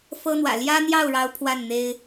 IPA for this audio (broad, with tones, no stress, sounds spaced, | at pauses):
f ɤ˥ n̪ w ä̰˨˩ l j ä˥ n̪ j ɑ˥˩ ʊ̯ ɻ ɑ˧˥ ʊ̯ pʰ w a˥˩ n n̪ e˥ ɪ̯